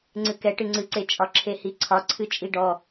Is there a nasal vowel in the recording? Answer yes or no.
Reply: no